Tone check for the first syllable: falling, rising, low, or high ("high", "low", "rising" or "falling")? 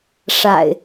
low